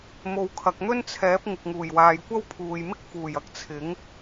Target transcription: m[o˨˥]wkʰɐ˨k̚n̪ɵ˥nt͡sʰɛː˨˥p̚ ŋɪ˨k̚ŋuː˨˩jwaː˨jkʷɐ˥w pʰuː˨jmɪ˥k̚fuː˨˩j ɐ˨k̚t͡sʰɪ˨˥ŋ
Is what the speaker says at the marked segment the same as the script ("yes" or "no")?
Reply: no